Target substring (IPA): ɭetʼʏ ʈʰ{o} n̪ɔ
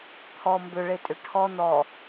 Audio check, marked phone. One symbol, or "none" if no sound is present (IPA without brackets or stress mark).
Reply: ɔ